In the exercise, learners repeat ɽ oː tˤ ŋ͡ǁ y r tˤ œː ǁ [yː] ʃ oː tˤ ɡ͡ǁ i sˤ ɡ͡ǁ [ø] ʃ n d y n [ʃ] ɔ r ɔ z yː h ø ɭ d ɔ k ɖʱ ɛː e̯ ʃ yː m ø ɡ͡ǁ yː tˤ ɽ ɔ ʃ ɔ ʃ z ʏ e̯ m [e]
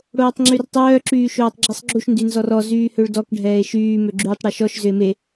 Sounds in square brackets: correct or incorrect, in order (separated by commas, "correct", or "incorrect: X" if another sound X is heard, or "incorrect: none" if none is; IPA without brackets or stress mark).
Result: correct, incorrect: u, incorrect: z, correct